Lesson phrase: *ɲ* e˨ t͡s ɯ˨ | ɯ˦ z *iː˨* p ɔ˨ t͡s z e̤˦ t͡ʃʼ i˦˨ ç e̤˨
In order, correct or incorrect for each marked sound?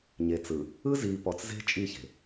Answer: correct, correct

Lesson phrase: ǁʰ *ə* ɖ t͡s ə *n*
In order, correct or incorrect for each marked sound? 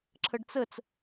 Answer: correct, incorrect: t͡s

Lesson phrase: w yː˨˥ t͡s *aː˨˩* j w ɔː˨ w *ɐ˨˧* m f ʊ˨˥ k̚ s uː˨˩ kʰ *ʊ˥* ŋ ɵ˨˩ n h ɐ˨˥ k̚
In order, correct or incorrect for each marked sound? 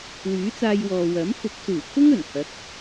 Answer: incorrect: aː˧, incorrect: ɐ˨˥, correct

